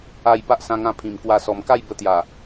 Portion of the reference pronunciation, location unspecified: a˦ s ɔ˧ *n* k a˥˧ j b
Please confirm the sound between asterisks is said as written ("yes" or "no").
no